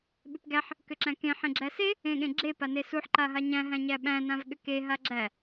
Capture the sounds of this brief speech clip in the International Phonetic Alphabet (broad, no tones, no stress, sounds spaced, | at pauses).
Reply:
ɓ ʏ p ɡ æ ħ | k ʏ ǁ æ̃ k ẽ ħ ẽ ɡ͡ǁ æ s e | ẽ ɠ ẽ ɡ͡ǁ e p a n e s u ħ ǃ a ɦ a ɲ æ̃ ɦ æ̃ ɲ æ ɓ æ̃ n ã v ɠ ʏ k e ɦ a ɡ͡ǁ æ